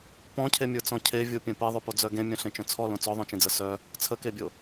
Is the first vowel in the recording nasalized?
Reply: yes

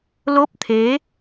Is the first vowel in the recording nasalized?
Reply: no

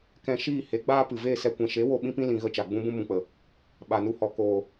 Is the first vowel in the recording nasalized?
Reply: yes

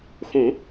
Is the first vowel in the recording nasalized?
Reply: yes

